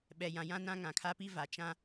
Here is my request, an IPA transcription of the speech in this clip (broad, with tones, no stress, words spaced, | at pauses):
ɓɛ˨jã˨jã˦ nã˦ŋã˨kʰa˦pi˦ va˨t͡ʃã˦